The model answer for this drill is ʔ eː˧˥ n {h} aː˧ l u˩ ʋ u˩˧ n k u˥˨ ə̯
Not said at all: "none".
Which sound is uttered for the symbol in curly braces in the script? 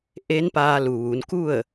p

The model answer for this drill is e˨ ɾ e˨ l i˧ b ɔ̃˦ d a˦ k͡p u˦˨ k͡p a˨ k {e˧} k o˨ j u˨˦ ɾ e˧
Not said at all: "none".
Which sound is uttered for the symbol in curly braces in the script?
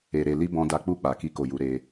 i˧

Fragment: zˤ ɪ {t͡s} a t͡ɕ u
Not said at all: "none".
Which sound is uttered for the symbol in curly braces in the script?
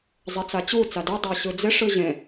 t͡s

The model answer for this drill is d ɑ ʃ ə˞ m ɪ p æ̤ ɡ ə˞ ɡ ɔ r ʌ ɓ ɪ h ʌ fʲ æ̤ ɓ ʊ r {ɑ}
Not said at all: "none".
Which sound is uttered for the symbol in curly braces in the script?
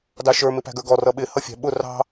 ɑ̤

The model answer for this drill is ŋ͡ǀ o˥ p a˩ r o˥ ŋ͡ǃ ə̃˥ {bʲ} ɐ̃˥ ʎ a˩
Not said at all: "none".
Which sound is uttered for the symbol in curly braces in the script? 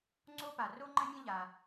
mʲ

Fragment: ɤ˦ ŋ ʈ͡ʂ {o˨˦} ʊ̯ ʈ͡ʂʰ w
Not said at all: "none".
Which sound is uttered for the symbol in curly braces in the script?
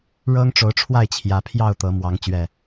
o˨˦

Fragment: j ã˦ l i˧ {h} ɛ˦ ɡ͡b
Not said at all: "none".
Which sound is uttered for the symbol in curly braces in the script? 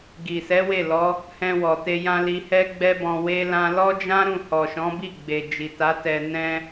h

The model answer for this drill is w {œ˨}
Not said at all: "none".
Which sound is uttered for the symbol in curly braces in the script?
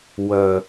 œ˨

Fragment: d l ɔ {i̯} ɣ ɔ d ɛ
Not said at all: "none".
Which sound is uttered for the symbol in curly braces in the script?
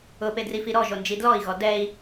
i̯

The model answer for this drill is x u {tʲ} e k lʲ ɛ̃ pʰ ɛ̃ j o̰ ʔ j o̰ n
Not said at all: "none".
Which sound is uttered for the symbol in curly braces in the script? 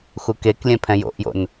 k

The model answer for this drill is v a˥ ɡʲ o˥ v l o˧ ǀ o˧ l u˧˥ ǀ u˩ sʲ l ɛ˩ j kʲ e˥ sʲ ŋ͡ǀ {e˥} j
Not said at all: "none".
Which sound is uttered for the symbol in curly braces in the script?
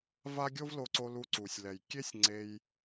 e˧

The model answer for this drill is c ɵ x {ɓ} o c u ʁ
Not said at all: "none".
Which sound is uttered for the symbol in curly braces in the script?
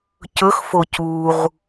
f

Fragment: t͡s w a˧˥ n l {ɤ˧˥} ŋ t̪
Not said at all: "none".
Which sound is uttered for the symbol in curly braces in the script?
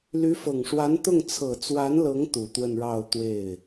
ɤ˧˥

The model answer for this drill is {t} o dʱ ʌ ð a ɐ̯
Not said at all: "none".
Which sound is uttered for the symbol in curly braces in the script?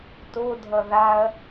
t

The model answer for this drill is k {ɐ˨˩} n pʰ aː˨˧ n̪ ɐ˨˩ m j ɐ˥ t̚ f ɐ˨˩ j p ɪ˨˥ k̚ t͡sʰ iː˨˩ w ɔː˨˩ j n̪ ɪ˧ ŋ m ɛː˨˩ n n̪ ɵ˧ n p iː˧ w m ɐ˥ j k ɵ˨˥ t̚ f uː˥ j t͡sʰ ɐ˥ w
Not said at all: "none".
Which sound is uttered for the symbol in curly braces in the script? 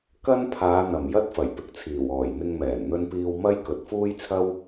ɐ˥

